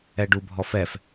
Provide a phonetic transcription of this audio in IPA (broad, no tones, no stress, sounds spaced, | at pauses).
ɛ ɖ u bʱ ɔ f ɛ f